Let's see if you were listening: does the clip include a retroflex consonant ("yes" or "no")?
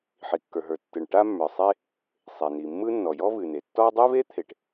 yes